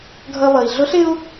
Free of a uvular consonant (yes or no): yes